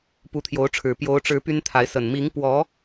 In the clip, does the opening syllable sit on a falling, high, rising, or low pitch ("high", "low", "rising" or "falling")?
rising